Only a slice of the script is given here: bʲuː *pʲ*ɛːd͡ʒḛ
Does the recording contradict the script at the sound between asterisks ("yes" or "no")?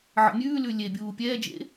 no